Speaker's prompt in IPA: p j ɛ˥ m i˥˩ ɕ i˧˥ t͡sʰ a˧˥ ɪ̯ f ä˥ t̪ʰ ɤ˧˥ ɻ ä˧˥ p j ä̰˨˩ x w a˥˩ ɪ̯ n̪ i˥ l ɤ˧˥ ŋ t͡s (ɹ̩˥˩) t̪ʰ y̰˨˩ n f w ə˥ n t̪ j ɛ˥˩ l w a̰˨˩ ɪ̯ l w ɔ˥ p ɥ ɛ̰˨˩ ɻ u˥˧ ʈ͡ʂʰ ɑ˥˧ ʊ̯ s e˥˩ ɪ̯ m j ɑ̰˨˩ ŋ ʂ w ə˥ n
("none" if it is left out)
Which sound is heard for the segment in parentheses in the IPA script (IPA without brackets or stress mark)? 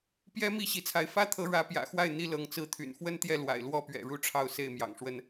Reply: ɹ̩˥